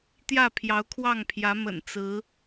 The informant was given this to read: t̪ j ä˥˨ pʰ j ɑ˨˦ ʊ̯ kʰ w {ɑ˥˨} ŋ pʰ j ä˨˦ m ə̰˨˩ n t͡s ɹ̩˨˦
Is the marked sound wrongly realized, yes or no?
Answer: no